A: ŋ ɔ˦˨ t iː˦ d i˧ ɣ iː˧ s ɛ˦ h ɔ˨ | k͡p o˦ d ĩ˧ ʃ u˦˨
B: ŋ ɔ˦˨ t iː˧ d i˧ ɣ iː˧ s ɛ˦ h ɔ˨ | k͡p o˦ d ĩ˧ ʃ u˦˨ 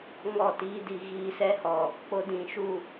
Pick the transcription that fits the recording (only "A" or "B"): A